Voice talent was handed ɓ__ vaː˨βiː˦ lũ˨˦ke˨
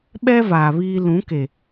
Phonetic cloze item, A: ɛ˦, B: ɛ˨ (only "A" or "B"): A